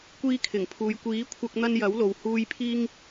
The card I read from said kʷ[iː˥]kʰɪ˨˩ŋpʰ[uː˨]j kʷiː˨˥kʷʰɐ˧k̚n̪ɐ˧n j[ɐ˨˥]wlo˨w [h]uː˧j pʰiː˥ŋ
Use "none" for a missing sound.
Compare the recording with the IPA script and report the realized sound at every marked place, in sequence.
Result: iː˧, uː˨, ɐ˨˥, h

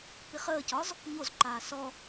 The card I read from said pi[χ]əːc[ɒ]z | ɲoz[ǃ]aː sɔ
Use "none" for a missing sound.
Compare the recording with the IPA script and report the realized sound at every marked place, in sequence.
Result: χ, ɒ, ǃ

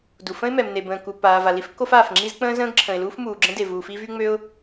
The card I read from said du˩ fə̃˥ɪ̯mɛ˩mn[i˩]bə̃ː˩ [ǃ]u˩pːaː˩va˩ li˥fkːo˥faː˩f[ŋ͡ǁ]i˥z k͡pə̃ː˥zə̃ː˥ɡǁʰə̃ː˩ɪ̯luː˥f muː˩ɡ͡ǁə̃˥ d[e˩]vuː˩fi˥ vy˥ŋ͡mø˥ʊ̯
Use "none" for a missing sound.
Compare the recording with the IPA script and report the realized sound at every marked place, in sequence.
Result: e˩, k, ŋ͡ǁ, e˩

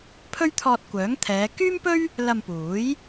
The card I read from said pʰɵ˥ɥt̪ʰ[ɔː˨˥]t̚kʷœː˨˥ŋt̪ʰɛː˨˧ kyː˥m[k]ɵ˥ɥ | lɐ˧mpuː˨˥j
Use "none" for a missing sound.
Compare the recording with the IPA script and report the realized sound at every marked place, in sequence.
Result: ɔː˧, p

